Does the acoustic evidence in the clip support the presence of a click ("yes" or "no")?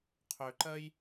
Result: yes